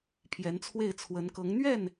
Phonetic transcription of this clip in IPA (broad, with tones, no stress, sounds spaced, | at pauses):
pʰ j ɛ˧˥ n t͡sʰ w e˥˩ ɪ̯ t͡sʰ w ə˧˥ n k ɤ˧˥ ŋ n̪ ɥ ɛ˥˩ n